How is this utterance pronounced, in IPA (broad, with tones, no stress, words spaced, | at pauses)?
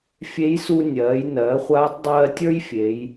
fʲe˧˥jsu˧nʲɜː˩˧jnɜː˩˧ χʷaː˧˥tˤdˤɜː˧tʲə˞˥j fʲeː˩˧j